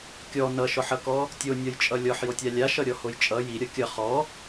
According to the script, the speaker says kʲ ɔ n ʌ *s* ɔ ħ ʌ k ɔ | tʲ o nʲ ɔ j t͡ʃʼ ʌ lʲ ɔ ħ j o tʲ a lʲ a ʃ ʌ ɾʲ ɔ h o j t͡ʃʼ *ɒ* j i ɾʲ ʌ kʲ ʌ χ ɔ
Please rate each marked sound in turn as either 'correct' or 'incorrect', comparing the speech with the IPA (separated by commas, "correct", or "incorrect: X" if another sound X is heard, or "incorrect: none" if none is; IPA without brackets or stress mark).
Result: incorrect: ʃ, incorrect: ʌ